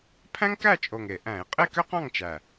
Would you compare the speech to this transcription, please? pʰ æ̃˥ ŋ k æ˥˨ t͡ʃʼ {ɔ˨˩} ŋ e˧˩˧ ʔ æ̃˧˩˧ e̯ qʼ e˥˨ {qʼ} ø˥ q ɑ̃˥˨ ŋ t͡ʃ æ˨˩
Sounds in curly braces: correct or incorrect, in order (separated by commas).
incorrect, incorrect